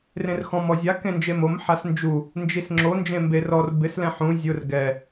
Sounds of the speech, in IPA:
r ẽ r x ɔ̃ m ɔ zʲ a k ẽ n d͡ʒ e m o m ħ a s n d͡ʒ u | n d͡ʒ i s ŋ͡ǁ o n d͡ʒ ẽ m b e r ɔ r b ɪ s l ɛ̃ ħ ũ zʲ ʊ r ɡ ɛ

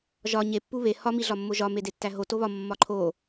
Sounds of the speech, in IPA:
ʒ ɒ ɲ e pː u β e h ɒ m i ɮ ɒ mː o ʒ ɒ m e d e tː æ ɦ o t o β ɒ mː ɒ ǃʰ o

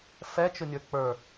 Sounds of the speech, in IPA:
f ɛ t͡ʃ ʊ nʲ ə˞ k͡p ə˞

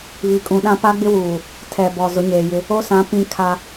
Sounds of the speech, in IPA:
β i˨ kʼ ũ˨ ɗ ã˦ p a˦ ɡ͡b ɪ˦ w uː˨ | tʰ ɛ˨ b ɔ˨ z ʊ˨˦ ɲ eː˨ j ɪ˦ | o˦ s ã˨˦ p ĩ˦ kʰ a˦

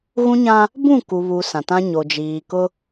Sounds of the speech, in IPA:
ɣ ũ˦ ɲ ã˦ | b ũ˦˨ k u˨ β u˨ s ã˨ t ã˦ ɲ o˨ d͡ʒ iː˨ k ʊ˦

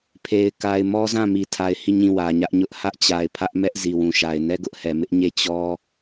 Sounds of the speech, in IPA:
pʰ e˨ ɪ̯ k a˨ ɪ̯ m ɔ˦ z ã˦˨ m i˨ tʰ a˨ ɪ̯ h i˦˨ ɲ ĩ˦˨ w ä˨ ɲ ä˦ ʔ ɲ ʊ˦ ʔ h ä˦ ʔ t͡ɕ a˨ ɪ̯ pʰ ä˦ ʔ m ɛ˦ ʔ z i˨ w ũ˨ ʃ a˨ ɪ̯ n ɛ˦ ɡ ʊ˦ ʔ h ɛ˨ m ɪ˦ ʔ ɲ e˦˨ t͡ɕ ɔ˦

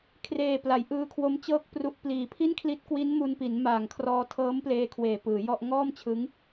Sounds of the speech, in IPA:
kʰ r eː˨˩ p l a˩˦ j ʔ ɯː˧ kʰ w o˦˥ m t͡ɕ ɤː˥˩ k̚ p r u˦˥ ʔ p l iː˨˩ pʰ i˥˩ n kʰ l i˦˥ t̚ k w i˦˥ n m u˧ n p i˩˦ n m aː˨˩ ŋ kʰ r ɔː˧ tʰ ɤː˦˥ m p l eː˧ kʰ w eː˨˩ p ɯː˩˦ j ɔ˥˩ ʔ ŋ ɔː˥˩ m t͡ɕʰ ɯ˦˥ ŋ

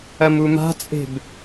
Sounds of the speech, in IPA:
ɐ m u m a̤ t͡sʼ e̤ b

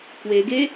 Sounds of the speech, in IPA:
k w e ɡ e

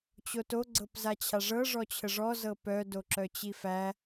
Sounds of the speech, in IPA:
t͡ɕ o t o ɡ͡ǀ ɤ p z a t͡ɕʰ a ʐ ɤ ʐ ɔ t͡ɕʰ ə ʐ ɔ z ɤ p œ d o ǁ œ t͡ɕ i f æ

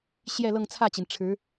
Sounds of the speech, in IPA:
ɕ j ɛ˥˧ l ɤ˥˧ ŋ t͡sʰ ä˥˩ t͡ɕ i˩ n ʈ͡ʂʰ ɻ̩˧˥

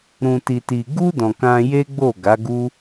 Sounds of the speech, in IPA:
ɾ ũ˨ t i˨ t i˨ ɡ u˧ d ɔ̃˨ k ã˧ j e˦ ɡ͡b o˦˨ ɡ a˨˦ ɡ u˦

